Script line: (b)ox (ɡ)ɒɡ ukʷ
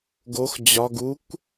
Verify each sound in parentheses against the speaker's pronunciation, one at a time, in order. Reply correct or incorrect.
incorrect, incorrect

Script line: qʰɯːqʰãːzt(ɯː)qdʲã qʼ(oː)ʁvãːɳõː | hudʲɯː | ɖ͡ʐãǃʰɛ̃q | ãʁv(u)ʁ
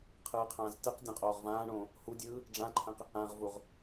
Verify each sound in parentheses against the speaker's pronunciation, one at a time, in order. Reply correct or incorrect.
incorrect, correct, correct

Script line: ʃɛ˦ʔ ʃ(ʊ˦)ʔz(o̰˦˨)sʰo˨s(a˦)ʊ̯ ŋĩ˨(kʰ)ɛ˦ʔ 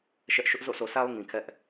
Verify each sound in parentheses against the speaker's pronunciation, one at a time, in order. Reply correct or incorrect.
correct, correct, correct, correct

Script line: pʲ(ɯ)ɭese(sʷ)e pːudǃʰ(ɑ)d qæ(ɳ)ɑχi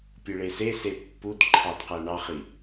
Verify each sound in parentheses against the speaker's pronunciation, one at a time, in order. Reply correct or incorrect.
correct, incorrect, correct, correct

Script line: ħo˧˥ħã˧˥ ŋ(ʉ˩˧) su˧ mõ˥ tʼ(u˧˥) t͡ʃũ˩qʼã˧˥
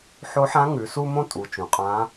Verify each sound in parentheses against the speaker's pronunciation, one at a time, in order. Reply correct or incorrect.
correct, incorrect

